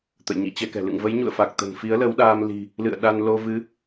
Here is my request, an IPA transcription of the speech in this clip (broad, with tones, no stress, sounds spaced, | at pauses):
t̪ ə̰˧˨ j ɲ ḭ˧˥ t͡ɕ ɛ˧ k ɛ̤˨˩ l ɨ̰˧˨ ŋ v ə˨˦ j ɲ ṵ˧˨ ə̯ f a˨˩ k̚ t̪ ə̤˨˩ n f i˨˦ ə̯ l ə˨˦ w ɗ aː˧ m l i̤˨˩ | l ɨ̰˧˨ ə̯ ɗ a˧ n l o˧ v ɨ˨˦